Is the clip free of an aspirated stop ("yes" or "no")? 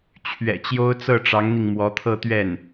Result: no